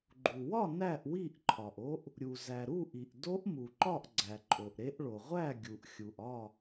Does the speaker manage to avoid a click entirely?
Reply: no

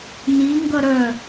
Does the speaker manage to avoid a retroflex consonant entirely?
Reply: yes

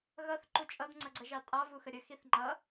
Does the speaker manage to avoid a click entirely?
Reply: no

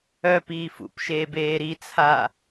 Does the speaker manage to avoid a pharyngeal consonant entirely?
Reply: yes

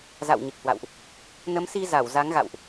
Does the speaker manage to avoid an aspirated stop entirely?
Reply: yes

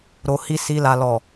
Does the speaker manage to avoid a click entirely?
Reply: yes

